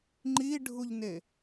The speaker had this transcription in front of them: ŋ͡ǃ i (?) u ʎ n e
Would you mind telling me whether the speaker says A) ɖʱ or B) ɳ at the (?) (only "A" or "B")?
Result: A